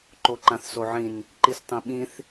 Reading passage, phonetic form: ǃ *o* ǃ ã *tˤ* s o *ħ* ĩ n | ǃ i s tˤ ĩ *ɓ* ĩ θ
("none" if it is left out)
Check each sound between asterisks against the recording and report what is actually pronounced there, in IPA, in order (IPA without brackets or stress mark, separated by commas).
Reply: o, θ, ʕ, ɓ